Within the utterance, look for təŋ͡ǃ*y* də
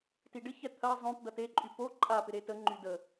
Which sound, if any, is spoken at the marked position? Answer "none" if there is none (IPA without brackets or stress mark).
y